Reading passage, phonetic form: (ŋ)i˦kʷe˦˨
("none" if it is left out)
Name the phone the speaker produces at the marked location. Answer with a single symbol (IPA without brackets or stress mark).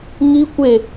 ŋ